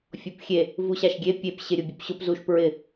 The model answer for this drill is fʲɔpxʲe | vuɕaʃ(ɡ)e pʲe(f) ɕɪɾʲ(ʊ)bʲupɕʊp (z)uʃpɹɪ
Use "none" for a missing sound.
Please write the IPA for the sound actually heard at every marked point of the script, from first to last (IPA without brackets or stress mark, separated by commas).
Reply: ɡʲ, p, ʊ, z